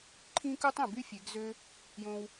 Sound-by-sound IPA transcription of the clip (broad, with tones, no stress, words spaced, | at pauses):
ǃʰĩ˧ku˧tˤ ĩ˨by˦fʲe˨˦ɡzø˦ | jõ˧w